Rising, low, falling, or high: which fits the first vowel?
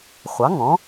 rising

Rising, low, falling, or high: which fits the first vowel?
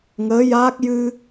rising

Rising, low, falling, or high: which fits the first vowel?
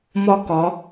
falling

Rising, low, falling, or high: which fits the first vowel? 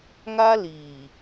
high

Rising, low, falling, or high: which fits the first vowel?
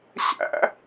high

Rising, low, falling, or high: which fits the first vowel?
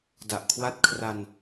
low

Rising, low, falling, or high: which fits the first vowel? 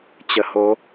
low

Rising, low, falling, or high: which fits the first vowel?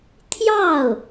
falling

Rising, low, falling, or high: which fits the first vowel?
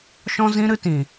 high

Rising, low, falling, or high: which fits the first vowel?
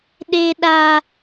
high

